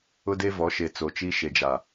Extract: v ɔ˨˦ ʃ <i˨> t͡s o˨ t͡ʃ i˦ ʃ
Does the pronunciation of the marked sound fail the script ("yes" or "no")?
yes